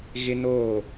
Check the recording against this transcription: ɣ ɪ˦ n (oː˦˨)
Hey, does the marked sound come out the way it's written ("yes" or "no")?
yes